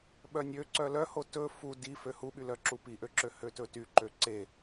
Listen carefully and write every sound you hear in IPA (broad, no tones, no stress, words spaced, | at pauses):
ɓœnʲø ǀœlœho tɵ fu di føhuɓylœ ǁupiʔøǁø høtɵtyǃø ǀe